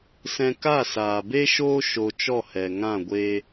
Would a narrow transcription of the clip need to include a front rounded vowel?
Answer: no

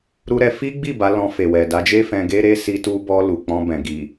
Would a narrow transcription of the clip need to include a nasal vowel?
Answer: yes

